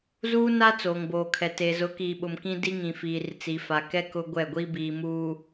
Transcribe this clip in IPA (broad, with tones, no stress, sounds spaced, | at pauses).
z uː˦ n a˦ t͡s oː˨ ŋ b oː˨ kʰ ɛ˨ t eː˨ z ʊ˨˦ k iː˨ ɓ ʊ˨ m k ĩ˦ d i˦ ŋ ĩ˨ f iː˨ r t͡s i˨ f a˨ k ɛ˦ k ʊ˦ ɡʷ ɛ˦˨ ɡʷ i˦ b iː˨ m uː˨